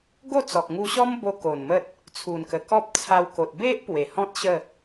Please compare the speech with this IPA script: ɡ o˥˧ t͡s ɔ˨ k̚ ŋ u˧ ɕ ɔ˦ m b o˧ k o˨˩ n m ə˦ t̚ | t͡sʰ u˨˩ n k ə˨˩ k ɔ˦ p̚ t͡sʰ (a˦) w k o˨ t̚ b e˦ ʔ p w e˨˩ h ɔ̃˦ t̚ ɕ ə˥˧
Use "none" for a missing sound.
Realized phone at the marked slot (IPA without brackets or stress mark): a˧